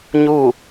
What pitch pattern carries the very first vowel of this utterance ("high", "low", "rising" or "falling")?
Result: falling